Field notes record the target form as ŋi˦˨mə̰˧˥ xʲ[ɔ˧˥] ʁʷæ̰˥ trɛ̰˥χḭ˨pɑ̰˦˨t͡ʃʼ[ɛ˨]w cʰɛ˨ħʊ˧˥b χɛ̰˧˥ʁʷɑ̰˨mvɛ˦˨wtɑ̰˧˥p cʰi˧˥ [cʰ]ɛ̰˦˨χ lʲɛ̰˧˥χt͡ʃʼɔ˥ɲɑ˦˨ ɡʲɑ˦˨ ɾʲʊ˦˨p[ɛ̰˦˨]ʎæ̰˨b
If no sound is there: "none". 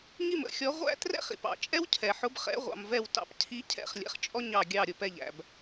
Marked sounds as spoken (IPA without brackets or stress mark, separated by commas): ɔ˧˥, ɛ˥, cʰ, ɛ˦˨